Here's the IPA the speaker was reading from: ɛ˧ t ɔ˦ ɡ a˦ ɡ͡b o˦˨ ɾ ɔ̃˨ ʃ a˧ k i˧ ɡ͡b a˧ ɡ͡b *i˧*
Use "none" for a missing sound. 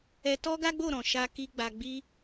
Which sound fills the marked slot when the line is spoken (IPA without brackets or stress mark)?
i˧